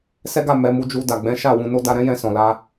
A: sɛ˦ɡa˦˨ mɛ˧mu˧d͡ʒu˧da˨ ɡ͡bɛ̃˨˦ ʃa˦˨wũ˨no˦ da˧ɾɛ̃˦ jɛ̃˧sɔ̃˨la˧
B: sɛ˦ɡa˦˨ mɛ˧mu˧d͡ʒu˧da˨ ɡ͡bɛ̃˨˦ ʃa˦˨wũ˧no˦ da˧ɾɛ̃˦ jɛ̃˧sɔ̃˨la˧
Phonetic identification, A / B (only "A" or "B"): B